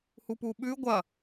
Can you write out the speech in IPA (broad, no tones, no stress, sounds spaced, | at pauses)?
h u p u ɓ ʉ ɡʷ ɐ